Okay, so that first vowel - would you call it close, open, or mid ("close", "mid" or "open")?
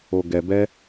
mid